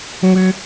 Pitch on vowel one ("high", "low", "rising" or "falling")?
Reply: high